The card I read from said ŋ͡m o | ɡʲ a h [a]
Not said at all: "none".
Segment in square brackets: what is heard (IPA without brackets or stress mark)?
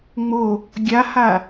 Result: a